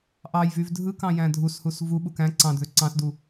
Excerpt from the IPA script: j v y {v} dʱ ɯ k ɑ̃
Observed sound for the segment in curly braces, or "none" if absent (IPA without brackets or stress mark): v